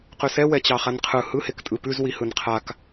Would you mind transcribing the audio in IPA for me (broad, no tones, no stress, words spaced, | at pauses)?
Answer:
qʉsɛ wɛt͡ɕɑχanqʰɯ hɯ hektʼɯpʉz wihɯnqʰak